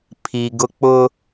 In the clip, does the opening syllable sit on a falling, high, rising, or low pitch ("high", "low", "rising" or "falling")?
low